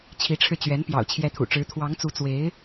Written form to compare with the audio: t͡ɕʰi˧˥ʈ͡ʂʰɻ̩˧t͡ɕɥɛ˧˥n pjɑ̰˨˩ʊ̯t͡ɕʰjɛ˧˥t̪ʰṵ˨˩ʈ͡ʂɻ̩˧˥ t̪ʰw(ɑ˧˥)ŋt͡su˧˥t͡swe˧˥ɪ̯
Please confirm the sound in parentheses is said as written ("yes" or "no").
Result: yes